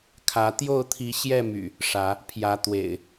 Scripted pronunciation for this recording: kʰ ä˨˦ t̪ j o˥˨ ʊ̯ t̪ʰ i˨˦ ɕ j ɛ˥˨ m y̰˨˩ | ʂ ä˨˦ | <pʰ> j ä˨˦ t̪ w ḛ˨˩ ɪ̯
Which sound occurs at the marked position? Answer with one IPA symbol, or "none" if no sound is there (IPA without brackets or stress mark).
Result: pʰ